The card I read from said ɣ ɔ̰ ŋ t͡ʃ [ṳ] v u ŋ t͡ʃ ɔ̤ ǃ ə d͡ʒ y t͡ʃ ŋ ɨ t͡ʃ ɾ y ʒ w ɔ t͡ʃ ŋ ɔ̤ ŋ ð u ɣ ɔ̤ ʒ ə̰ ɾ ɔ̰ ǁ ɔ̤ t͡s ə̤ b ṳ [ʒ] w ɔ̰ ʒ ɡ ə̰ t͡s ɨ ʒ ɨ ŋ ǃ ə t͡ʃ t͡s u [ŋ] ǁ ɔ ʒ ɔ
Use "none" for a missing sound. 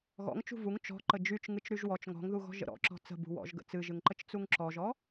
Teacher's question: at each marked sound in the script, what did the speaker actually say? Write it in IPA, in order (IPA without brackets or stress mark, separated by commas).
ṳ, none, ŋ